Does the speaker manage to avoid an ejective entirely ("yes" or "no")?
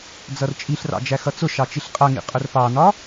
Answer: no